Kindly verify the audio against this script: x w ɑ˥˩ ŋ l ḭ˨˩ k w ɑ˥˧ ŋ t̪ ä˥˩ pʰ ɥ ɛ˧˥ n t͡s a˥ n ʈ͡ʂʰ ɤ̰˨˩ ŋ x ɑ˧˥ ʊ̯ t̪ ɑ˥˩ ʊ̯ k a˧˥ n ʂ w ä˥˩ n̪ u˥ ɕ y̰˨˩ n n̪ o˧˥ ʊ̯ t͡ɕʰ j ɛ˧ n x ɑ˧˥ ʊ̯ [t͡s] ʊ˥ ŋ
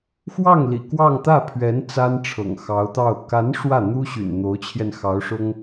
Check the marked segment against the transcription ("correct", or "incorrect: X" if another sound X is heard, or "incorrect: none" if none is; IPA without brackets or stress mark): incorrect: ʂ